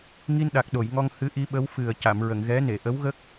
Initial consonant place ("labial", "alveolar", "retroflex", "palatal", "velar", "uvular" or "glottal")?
velar